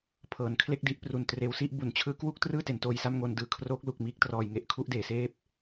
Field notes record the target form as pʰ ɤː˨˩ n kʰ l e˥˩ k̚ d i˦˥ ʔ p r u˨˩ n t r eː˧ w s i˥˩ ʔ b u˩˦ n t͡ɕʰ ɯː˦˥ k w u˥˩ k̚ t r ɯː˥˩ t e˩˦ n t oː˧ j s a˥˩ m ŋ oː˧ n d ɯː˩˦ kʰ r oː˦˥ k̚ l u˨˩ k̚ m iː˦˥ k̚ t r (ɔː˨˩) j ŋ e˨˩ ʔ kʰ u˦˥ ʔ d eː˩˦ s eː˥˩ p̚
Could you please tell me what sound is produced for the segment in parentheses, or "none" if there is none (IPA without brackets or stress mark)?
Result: ɔː˨˩